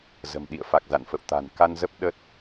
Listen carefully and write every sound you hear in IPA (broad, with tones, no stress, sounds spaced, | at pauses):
z ə̤˨˩ m ɗ ḭ˧˨ ə̯ f a˨˩ k̚ z a̰˧˨ n f ə̰˧˨ w t̪ a̤˨˩ n k a˧ n z ə˦˥ p̚ ɗ ə˦˥ t̚